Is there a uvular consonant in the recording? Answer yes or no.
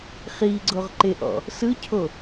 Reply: yes